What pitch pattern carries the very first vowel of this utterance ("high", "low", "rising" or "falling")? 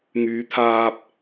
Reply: rising